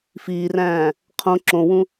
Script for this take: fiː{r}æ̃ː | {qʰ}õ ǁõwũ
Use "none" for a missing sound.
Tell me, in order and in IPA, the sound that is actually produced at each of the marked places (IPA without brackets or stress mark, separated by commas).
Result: r, qʰ